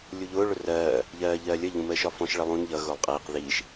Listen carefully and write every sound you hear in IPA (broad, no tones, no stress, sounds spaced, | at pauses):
lʲ u ʎ ʊː ɭ ʊ r ɜː | ʎ ɜː ʎ ɜː lʲ ə ʎ ũ m əː ʃ ɒ f ɔ̃ ʃ ɭ ɪ lˠ ũ n ʎ ʌ ɣ ʊː lˠ qʼ iː q ð iː ʃ